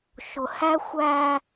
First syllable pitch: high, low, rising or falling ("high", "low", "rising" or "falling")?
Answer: low